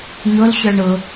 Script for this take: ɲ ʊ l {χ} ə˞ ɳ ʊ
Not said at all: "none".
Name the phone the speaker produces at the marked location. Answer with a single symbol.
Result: ç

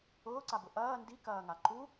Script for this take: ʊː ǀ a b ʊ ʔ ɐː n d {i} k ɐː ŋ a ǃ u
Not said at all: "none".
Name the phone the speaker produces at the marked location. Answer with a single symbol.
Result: i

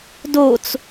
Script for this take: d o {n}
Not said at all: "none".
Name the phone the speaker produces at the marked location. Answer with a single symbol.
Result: t͡s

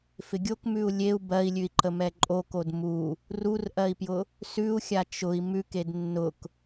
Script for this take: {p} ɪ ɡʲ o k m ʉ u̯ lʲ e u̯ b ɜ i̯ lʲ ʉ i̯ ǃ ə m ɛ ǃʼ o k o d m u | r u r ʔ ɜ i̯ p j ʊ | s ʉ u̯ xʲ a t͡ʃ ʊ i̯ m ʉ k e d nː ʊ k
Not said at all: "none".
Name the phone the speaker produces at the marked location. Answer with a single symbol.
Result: f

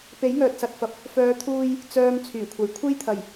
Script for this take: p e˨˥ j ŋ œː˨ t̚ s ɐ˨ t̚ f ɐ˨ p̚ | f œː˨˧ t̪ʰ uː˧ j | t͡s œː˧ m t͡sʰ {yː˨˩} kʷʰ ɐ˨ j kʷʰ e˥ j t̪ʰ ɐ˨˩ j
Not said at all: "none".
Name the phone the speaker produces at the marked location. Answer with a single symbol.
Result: yː˨˩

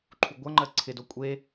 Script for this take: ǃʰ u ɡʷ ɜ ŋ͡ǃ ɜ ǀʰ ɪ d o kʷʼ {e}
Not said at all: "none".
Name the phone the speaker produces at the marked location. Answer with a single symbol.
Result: e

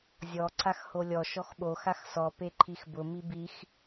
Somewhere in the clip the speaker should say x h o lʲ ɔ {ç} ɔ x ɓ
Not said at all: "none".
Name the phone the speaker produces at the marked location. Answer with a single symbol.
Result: ʃ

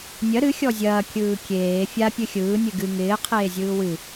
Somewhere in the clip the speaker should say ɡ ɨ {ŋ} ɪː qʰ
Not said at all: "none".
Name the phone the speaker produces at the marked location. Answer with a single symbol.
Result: ŋ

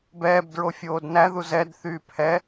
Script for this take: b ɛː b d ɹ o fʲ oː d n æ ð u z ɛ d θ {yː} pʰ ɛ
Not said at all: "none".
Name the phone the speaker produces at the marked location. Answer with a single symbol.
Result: yː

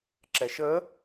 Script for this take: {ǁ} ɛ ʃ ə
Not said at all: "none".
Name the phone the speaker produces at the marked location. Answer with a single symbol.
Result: ǁ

